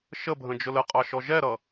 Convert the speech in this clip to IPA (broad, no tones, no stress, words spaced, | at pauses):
ʃəbʱə̃ d͡ʒʊləqʼɑ ʃɔʒɛɾʌ